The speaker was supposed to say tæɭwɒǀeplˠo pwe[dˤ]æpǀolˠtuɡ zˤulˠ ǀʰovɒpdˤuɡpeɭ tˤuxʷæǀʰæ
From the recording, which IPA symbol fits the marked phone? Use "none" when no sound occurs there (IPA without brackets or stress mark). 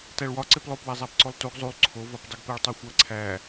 zˤ